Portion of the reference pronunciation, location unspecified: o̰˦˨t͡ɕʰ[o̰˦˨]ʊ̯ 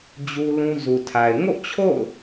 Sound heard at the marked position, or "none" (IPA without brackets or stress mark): o̰˦˨